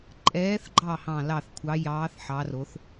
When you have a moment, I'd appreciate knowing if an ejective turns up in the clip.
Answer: yes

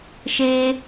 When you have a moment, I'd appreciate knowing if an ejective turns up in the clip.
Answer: no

